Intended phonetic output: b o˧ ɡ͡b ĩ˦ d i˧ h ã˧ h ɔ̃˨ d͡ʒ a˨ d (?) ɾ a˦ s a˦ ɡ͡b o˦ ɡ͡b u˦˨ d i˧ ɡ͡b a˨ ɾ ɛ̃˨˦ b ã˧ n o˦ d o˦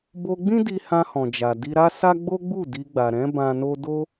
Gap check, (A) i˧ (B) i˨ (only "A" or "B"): A